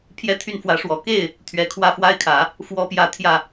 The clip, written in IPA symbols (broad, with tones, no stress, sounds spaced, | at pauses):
pʰ j ɛ˥˧ t̪ʰ y˥˩ n f w ä˧˥ ʂ w ɔ˨˩ k e˥˩ ɪ̯ | t̪ʰ ɥ ɛ˨˩ kʰ w ä˥˩ f w a˥ ɪ̯ kʰ ä˨˩˦ | f w ɔ˧˥ p j ä˨˩ t̪ʰ j ä˥˩